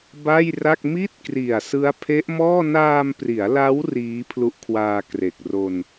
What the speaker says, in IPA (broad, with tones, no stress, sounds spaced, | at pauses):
b a˥˩ j r a˥˩ k̚ m i˥˩ t̚ k r i˨˩ a̯ s ɯ˦˥ a̯ pʰ e˦˥ ʔ m ɔː˥˩ n aː˧ m p r i˩˦ a̯ l a˦˥ w r iː˦˥ pʰ l u˦˥ ʔ kʰ w aː˧ k r e˨˩ k̚ r o˧ n